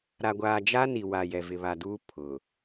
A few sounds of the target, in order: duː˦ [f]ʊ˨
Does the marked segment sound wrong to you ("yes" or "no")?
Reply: yes